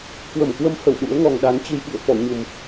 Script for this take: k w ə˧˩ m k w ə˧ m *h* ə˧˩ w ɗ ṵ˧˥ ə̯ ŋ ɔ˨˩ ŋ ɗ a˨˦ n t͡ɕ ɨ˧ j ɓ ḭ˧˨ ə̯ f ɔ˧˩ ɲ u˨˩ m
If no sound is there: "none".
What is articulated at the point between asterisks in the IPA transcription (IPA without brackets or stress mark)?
h